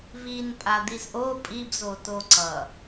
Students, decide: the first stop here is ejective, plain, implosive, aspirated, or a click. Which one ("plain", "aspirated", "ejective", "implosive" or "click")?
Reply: ejective